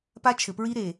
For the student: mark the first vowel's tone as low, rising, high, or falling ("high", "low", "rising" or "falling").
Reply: high